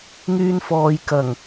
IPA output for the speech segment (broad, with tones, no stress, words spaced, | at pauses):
ŋyː˧nfɔː˨j kɐ˨˩ŋ